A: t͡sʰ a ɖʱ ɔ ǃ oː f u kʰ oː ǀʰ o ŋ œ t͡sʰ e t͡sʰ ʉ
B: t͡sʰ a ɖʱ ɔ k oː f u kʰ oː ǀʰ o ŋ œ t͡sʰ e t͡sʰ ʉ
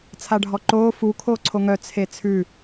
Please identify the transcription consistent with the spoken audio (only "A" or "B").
A